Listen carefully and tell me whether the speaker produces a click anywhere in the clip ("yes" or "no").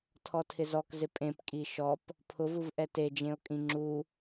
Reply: yes